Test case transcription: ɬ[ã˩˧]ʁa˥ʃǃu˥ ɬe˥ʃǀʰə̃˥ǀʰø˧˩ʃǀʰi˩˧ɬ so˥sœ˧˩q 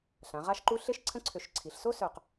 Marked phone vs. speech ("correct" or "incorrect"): correct